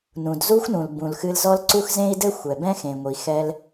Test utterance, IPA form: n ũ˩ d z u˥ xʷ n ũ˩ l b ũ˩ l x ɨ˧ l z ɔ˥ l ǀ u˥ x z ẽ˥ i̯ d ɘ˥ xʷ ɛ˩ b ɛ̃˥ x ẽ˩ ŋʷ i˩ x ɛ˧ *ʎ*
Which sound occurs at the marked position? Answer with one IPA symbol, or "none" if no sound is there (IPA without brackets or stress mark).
l